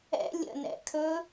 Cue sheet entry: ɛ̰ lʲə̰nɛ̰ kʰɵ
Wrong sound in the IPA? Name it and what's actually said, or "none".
none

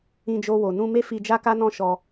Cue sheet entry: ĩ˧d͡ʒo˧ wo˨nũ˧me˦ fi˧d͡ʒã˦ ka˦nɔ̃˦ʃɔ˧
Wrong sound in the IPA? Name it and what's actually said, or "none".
ã˦ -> a˦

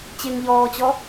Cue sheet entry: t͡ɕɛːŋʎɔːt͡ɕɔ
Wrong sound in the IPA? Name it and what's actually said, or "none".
ɛː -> ɪː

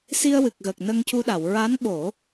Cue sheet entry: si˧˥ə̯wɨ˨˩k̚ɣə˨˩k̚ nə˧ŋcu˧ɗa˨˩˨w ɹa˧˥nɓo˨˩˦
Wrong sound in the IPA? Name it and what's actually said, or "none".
i˧˥ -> i˧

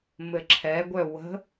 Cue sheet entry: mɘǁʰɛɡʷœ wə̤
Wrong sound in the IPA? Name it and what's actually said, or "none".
none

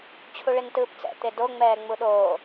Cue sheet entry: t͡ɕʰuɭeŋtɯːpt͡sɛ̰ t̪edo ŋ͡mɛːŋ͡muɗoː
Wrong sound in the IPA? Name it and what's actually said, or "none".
none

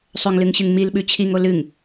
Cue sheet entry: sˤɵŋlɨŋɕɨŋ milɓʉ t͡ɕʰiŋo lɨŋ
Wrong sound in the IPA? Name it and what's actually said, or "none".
none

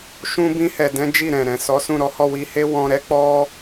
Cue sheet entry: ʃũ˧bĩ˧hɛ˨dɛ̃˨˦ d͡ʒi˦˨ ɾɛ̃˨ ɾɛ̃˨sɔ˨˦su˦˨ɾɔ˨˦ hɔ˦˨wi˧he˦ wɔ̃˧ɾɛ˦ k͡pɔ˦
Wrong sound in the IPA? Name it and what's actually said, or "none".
u˦˨ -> ũ˦˨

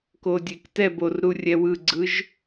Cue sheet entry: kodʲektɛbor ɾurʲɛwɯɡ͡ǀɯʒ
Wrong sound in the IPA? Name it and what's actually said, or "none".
none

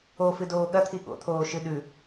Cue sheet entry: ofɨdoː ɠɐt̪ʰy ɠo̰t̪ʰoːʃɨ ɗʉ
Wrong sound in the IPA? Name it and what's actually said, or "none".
y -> i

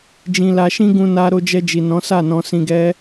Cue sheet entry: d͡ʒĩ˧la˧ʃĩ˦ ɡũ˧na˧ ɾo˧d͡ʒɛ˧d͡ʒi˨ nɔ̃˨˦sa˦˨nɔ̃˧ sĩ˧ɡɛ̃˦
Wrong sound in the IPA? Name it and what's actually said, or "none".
ɛ̃˦ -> ɛ˦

